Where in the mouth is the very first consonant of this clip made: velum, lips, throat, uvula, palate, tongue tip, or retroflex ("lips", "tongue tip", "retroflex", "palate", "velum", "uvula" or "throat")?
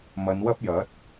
lips